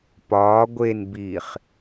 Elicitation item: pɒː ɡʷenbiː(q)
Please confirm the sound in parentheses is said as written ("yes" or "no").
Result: no